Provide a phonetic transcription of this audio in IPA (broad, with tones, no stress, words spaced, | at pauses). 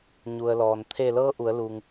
ɲu˩ə̯lɔː˩n t̪ʰe˧˩lɤː˧˥ ʔu˩˧ə̯luː˩ŋ